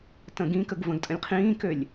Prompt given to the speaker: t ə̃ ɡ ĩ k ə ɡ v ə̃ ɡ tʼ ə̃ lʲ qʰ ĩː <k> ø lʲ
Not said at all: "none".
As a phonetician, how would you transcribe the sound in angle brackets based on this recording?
k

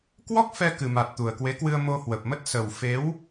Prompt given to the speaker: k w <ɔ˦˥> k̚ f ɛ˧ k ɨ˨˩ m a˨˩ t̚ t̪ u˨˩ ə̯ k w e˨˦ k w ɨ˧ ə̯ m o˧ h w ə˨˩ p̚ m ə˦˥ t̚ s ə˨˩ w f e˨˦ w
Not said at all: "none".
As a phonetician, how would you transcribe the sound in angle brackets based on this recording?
ɔ˦˥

